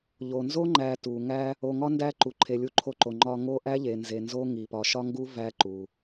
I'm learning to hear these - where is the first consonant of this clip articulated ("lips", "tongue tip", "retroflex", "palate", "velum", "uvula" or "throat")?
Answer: palate